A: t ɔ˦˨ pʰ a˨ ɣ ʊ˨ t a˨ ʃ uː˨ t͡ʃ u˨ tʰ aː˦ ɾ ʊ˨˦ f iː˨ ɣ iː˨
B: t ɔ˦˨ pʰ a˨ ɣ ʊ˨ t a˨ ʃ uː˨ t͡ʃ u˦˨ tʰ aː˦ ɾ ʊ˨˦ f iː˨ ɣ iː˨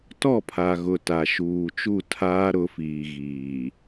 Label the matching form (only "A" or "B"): B